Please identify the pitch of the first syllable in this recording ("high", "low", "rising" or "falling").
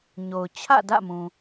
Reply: low